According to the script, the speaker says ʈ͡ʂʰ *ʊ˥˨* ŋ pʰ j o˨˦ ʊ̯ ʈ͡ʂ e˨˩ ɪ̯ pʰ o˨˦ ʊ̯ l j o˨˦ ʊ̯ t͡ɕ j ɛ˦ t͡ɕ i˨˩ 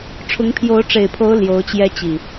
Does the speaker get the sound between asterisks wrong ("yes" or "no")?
yes